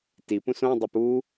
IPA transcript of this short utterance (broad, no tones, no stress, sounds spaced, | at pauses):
t i p ũ s õ dˤ ɵ p u